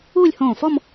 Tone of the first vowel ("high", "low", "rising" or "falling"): falling